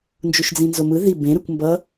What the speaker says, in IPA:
nd͡ʒuʃd͡zĩnzomɯ ði bẽ ɾɯkʷmbʌ

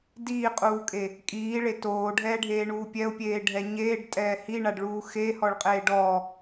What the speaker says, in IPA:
diːqʼuːkʼe | kʼiːɭe toːɖʱɛːɖʱeːɳuː pʲɛʊ̯pʲeːɖʱɛ ɲeːɖtʼɛː hiɳaɖɭuː xehɔɭqʼeː ɖɔː

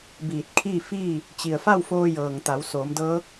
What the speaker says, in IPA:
biː˧˩t̚kʰiː˥˨fiː˥˨ | t͡ɕi˩ə̯fa˥˨wfoː˧jɤː˩ŋ t̪a˩˧w soː˩˧mdɤː˧˥k̚

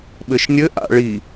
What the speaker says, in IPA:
ɓɘʃnʲɘ ʔa̰ɭi

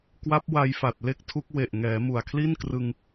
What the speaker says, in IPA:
kwa˦˥p̚wa˧jfa˨˩t̚ le˥˩k̚tʰu˦˥k̚ we˨˩ʔ ŋɛː˩˦mu˨˩a̯kʰli˥˩n krɯ˧ŋ

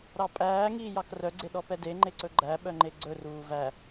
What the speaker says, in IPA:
ɾɑpʼæːŋiːjɑk rœɡ͡ǀeɗɔ pɛdeŋ͡ǃeǀɵ ɡ͡ǃæ ɓœŋ͡ǃeɡ͡ǀɵruː væ

